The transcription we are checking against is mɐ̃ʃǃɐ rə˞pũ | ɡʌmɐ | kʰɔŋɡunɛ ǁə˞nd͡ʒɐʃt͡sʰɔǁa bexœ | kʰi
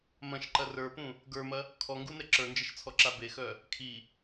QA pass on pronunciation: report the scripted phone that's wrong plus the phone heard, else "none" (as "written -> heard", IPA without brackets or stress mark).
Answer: ʌ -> ə˞